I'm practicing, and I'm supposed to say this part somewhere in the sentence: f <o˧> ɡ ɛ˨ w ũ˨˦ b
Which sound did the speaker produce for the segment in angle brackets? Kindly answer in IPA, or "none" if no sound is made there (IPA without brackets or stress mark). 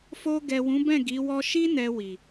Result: o˧